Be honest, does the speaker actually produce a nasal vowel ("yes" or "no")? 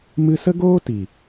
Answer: no